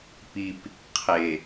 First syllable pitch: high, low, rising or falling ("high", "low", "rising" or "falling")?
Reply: low